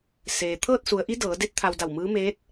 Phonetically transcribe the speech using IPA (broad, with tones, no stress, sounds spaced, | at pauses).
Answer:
s eː˩ t̪ʰ ɤː˥˨ t̚ s u˩˧ ə̯ ʔ i˧˥ d ɤː˩˧ d e˧˥ t̚ t̪ʰ a˧ w d a˧˩ w m ɯː˧˥ m eː˧˥ t̚